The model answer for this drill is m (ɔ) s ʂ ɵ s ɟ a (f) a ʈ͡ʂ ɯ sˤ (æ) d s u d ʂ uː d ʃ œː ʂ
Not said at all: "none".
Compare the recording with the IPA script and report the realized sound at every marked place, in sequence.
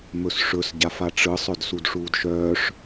ɵ, f, œ

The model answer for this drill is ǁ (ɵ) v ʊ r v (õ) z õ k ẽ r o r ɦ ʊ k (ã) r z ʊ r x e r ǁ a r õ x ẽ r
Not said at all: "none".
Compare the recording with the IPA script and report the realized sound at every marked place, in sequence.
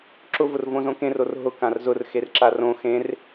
ʊ, õ, ã

